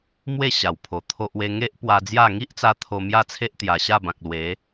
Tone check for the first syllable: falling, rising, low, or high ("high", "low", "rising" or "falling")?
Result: falling